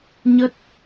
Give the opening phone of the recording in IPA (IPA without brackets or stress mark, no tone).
ɲ